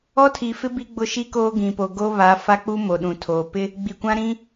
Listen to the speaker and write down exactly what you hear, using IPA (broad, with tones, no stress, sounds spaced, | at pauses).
ɔ˦ tʰ i˨ f ɪ˦ b i˦ ɡ͡b ʊ˦ ʃ i˦ k oː˦ ɡ ĩ˨ p o˨ ɡ o˦ β a˨˦ f a˦ k͡p u˦ m o˨ ɗ ũ˨ tʰ oː˨ p ɪ˦ | ɡ͡b i˨ kʷ ã˦ ɾ ĩ˦